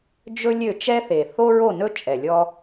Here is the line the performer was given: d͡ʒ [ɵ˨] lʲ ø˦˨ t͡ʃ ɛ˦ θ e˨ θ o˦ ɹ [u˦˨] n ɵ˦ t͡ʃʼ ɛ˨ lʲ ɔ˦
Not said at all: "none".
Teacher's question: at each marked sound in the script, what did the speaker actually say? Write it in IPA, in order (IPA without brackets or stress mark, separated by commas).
ɵ˦, o˦˨